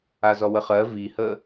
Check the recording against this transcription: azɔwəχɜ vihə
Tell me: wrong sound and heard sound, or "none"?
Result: none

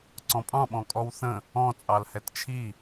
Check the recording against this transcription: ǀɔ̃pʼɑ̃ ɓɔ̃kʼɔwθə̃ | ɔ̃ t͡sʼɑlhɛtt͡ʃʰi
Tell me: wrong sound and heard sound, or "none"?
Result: none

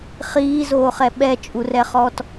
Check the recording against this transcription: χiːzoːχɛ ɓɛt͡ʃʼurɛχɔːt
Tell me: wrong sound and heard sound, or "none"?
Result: none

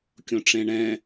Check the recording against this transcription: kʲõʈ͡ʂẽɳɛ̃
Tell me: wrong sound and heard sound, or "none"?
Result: none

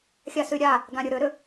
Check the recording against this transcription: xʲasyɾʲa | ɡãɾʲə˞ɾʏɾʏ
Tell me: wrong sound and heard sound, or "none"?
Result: none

